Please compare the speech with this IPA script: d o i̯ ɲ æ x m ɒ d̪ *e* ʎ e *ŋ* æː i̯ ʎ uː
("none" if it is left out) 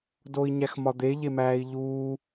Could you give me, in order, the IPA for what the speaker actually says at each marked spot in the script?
e, m

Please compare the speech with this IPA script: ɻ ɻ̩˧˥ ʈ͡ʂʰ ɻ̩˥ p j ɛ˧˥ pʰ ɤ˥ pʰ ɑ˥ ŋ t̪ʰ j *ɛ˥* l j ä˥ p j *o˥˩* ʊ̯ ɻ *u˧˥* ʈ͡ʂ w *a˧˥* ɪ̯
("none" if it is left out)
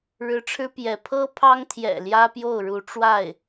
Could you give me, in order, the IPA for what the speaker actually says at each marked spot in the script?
ɛ̰˨˩, o˥˩, u˧˥, a˥˩

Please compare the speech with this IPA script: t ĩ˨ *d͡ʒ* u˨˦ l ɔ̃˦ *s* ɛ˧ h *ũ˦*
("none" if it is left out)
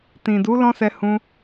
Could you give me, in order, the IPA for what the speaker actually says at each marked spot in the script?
d, s, ũ˧

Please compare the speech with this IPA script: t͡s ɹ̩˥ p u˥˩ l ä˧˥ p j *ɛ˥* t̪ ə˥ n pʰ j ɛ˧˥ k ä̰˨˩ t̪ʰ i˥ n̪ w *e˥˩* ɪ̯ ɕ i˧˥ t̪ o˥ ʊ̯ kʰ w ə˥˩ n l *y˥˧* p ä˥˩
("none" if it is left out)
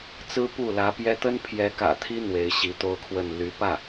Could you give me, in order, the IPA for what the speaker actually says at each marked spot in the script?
ɛ˥, e˧˥, y˧˥

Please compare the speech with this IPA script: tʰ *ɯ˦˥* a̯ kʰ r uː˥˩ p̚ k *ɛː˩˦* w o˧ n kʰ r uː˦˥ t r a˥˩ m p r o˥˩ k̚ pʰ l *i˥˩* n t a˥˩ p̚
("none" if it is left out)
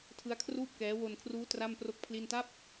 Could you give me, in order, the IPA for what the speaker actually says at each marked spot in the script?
ɯ˦˥, ɛː˦˥, i˥˩

